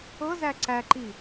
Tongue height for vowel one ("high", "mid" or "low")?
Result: mid